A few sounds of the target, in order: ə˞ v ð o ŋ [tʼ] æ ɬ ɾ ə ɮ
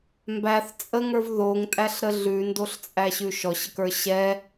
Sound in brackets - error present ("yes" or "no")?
no